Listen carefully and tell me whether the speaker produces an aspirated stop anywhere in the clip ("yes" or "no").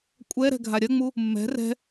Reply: no